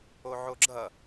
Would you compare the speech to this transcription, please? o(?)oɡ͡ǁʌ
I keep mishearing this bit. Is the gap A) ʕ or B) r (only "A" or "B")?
A